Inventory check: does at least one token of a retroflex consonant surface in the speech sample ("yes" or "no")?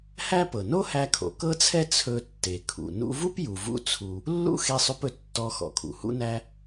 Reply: no